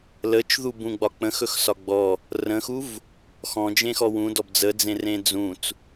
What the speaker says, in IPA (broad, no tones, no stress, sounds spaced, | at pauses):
l ə t͡ʃ ð u b ũ ɡ͡b ɒ k͡p ə̃ x ɵ x s ɒ ɡ͡b ɔ | r ə̃ x u v | x ɔ̃ d͡ʒ ẽ x ɔ w ũ d ɔ b d͡z ə d͡z ẽ r ẽ d͡z ũ t͡s